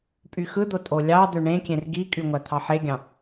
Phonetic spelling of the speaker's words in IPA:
pʼ y x ɯ d̪ o tʼ o lʲ ɑ d̪ ø ɳ ẽ kʲ ẽ r ɡ i kʼ y ŋʷ æ t̪ʰ ɑ ħ e ɡʲ ɑ̃

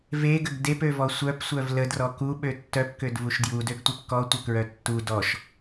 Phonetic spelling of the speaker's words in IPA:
v e ɡ ə ɡ d e p ø v ɔ sʷ œ p sʷ œ v l ə d r ɔ k u ɓ ø tː œ p k ø d v u ʃ d j u d ø ɡ tʷ e p k ɔ tʷ œ k ɹ œ tː u d ɔ ʃ

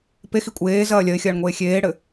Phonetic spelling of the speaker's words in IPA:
p e x i kʷʼ eː z ɐː lʲ ɐ ɪ̯ xʲ ɐː ɳ ŋʷ eː xʲ eː ɽ ɘ

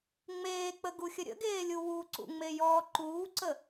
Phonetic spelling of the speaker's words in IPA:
ŋ͡m eː k͡p ə ɡ u xʲ ə ɾʲ ə̰ ɡ eː lʲ u w u ǀ ṵ ŋ͡m e j ɔː ǃ uː ǀ ə

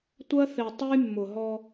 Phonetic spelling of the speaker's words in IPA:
tʷ ɜ˦ θ e˨ tˤ u˦ j mː ʊ˨ ɦ ɔ˦

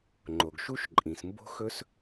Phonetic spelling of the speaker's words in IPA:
ŋ͡ǃ o˨ ɡ ʃ u˦ ʃ ǃʼ ĩ˨ s m b o̤˦ x ɵ˦ s

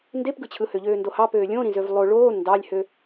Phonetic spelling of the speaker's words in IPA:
n d e p ɡ ɯ t͡ɕʰ ɯ h ø ʎ øː n d o h ɑ p øː lʲ õ ɾ ĩ z ø v lˠ o ɭ oː n d ɑ lʲ h ø

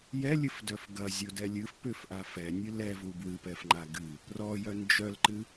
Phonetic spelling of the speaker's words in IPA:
j ɛ lʲ ɨ f d œ f ɡ ɐ zʲ o d ɛ lʲ ɨ f p ʏ f ʔ a f ɛ nʲ ɨ l ɛ v u b w ɨ p ɛ f ŋ͡ǃ a ɡ ɨ | r ɔ j œ n d͡ʒ œ l ǃ ɨ

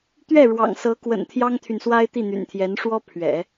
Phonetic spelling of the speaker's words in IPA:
t̪ ɥ ɛ˥˩ ɻ w ɑ̰˨˩ ŋ s ɤ˧˥ k w ə̰˨˩ n t̪ʰ j ɑ˥ ŋ t̪ʰ y˨ n s w a˥ ɪ̯ t̪ i˥˩ n̪ y̰˨˩ n t̪ʰ j ɛ˧˥ n ʂ w ɔ˥ pʰ ɥ ɛ̰˨˩˦

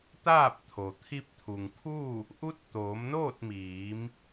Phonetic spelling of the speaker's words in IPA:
t̪ aː˥˨ p̚ t̪ʰ o˩ t̪ʰ i˧ p̚ t̪ʰ u˩ ŋ kʰ u˥˨ | ʔ u˧˥ t̚ t̪ oː˩˧ m n oː˥˨ t̚ m iː˩˧ m

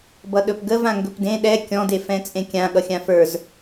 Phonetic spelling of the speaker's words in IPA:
b ʌ ɗ ɵ p ɡ ə v ã ŋ ɡ ɵ p d ẽ ɗ ɛ kʲ ɔ̃ d e f ɛ̃ t͡sʼ ẽ kʲ ã ɠ ʌ xʲ ã f ə˞ z

